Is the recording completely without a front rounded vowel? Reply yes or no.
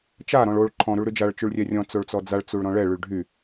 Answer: no